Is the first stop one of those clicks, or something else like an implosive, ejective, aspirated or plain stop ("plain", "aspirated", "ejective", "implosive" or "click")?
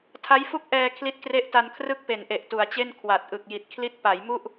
aspirated